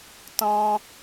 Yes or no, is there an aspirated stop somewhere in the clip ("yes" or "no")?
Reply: no